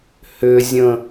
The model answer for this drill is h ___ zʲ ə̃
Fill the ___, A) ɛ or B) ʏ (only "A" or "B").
B